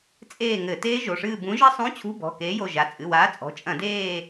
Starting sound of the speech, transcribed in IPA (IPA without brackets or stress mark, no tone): t͡sʼ